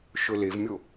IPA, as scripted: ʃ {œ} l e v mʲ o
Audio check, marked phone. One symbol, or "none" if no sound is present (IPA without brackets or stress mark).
ɵ